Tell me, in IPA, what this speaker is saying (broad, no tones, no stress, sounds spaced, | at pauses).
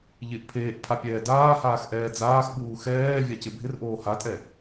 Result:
ʎ ɪ ʔ pʰ eː ʔ pʰ a pʲ ɛː d aː h aː x ʔ ɛː d͡z aː x ɓ uː x ɛː vʲ a c ɪ bʱ ɪ r ʔ oː h a tʼ ɛ